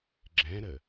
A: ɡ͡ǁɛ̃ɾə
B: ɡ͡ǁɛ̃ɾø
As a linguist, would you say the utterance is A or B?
A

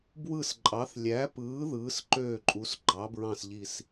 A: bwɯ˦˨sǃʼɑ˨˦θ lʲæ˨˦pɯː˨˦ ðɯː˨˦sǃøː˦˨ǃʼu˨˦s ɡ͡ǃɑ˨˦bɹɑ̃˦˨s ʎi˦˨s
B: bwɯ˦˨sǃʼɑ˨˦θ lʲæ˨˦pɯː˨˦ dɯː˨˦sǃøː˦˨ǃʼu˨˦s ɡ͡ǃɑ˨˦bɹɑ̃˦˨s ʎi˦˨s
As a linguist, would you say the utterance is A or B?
A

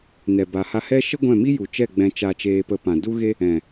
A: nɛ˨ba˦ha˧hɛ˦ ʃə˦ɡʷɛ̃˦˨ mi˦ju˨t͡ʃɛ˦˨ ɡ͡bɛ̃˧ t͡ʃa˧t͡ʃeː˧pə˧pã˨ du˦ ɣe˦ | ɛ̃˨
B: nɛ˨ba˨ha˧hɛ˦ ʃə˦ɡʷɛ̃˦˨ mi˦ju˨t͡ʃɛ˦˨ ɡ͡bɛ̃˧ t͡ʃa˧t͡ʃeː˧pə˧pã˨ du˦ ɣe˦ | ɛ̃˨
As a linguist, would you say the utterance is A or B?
B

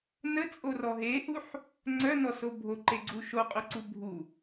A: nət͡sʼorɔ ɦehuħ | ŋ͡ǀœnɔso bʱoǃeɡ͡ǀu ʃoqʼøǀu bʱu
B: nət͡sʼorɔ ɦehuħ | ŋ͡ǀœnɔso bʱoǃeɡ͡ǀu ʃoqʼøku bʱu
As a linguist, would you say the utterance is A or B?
A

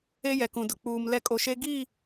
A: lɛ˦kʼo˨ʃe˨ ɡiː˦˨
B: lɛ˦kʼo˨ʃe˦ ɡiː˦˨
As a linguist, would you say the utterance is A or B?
B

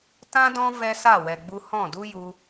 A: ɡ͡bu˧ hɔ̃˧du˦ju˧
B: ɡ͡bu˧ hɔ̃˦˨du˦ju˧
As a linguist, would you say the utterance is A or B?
B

